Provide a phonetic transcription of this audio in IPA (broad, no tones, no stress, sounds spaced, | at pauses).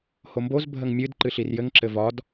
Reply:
h o m b o z bʱ ə ŋ mʲ ɨ d ǃ ɨ ɬ i r j ɘ ŋ ǁ ɘ v ɒ d